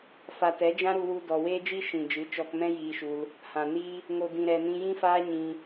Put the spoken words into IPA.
fa˨tɛ˨˦ d͡ʒã˦ɾu˧wu˧ dɔ˨weː˦d͡ʒi˦ ʃĩ˨d͡ʒɨ˨˦ t͡ʃɔ˧kmɛ̃˦jiː˧ʃu˧l | hã˨ni˦ | ŋo˨dĩ˨ɾɛ˨nĩ˧ jĩ˦faː˦ɲĩ˧

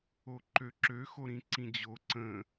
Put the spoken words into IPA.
oǃøǁø xoɾĩǀĩd͡ʑo ǀə̃

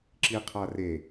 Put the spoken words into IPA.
ǁiqʰare

